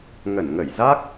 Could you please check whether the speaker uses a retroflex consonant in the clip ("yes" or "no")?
no